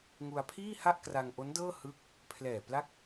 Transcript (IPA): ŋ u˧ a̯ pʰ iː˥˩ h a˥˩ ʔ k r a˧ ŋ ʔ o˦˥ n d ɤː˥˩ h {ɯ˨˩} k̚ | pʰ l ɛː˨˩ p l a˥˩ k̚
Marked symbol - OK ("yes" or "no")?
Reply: no